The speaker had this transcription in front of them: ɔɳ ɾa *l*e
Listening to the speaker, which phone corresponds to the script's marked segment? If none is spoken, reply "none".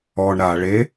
ɭ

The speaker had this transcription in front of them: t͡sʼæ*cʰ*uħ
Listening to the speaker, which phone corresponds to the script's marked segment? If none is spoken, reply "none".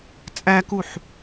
k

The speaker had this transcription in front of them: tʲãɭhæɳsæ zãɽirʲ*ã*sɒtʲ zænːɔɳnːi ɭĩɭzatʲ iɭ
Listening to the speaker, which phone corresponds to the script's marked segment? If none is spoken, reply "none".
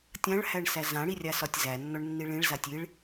a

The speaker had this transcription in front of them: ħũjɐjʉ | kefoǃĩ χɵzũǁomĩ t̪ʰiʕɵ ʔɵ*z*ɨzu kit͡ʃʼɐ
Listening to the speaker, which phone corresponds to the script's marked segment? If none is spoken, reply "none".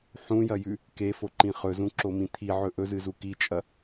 z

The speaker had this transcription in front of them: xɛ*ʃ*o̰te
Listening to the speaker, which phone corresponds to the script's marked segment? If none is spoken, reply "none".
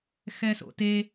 s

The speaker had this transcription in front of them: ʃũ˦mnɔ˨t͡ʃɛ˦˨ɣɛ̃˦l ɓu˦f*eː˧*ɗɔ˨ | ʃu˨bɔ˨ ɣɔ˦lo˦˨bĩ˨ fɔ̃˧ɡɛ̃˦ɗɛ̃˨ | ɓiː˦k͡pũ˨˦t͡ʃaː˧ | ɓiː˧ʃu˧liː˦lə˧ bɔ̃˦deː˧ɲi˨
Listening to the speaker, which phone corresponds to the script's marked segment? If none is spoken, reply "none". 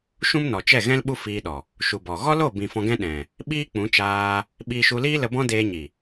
iː˧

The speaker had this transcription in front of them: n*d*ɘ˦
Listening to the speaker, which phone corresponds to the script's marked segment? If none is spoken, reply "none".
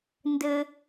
d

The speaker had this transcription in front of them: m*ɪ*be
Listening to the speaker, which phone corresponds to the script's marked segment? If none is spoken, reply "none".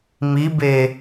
i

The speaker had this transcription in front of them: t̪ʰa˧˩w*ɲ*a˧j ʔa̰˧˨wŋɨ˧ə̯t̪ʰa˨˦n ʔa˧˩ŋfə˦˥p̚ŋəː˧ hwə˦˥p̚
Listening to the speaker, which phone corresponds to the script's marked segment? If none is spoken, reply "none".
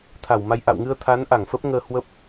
m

